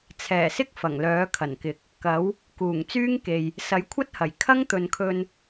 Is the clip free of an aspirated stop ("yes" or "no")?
no